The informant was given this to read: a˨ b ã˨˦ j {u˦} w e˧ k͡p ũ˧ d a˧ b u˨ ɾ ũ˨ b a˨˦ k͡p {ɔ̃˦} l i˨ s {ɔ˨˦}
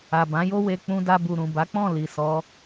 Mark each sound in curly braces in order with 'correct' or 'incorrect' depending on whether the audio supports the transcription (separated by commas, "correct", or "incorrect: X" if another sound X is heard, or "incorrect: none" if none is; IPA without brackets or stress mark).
incorrect: o˦, incorrect: ɔ̃˦˨, correct